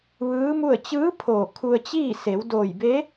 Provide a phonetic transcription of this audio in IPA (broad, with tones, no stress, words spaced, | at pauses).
ʋɯː˧˥mu˥˨ə̯ t͡ɕɯː˧˥ pʰoː˧˩kʰu˧ə̯t͡ɕiː˥˨ se˩˧wdoː˧˩jbe˧˥